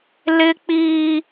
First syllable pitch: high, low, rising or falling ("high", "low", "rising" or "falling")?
high